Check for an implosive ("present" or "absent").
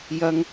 absent